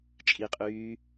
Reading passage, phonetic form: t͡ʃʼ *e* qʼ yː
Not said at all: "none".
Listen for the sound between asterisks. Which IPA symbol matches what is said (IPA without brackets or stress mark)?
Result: i